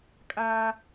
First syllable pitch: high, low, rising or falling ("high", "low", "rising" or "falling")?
high